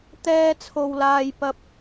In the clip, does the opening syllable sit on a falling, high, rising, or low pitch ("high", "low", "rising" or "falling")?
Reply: high